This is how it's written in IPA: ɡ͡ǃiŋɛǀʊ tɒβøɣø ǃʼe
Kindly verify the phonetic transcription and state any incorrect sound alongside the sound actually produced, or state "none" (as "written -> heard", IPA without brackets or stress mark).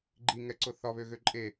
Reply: t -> θ